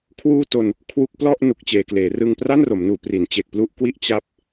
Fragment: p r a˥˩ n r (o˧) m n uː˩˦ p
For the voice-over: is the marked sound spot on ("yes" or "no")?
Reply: no